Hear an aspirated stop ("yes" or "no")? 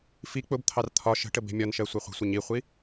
yes